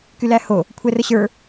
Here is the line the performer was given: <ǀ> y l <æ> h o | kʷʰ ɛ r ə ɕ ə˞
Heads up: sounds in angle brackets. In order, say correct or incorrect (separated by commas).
incorrect, correct